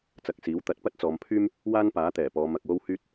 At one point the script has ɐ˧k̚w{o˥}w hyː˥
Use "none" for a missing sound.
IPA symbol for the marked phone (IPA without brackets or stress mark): o˥